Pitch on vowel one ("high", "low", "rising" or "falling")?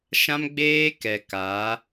high